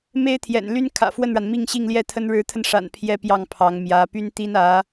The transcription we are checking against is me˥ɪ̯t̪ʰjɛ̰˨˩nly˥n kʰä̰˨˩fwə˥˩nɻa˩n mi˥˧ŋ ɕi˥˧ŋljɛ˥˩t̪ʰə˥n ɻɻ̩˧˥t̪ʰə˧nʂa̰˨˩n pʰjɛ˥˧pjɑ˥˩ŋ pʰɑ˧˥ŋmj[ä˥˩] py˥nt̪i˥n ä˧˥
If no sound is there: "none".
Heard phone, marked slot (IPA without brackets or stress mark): ä˧˥